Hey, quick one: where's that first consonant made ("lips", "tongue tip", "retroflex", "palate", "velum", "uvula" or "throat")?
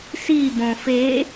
tongue tip